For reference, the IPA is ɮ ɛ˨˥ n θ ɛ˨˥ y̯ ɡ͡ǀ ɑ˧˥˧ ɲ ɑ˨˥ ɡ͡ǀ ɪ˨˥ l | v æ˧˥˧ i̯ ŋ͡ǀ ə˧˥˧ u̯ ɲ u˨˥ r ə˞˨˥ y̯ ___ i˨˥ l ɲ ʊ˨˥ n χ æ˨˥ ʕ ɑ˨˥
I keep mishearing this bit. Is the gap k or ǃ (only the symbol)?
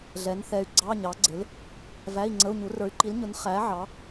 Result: ǃ